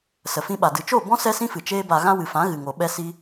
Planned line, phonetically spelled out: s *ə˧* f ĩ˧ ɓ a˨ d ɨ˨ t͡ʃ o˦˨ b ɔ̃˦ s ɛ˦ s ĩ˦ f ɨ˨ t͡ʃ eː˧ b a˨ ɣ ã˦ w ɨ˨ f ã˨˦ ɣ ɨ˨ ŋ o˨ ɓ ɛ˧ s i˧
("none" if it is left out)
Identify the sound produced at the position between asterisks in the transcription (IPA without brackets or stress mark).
ə˨